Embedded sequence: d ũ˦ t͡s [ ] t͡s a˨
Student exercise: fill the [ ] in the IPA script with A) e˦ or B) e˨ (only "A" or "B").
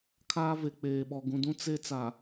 A